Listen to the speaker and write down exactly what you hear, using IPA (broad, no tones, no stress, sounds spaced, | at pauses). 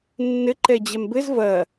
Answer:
nː ɘ ǃ ɛ d͡ʑ ɛ m b ɘ z v ɐ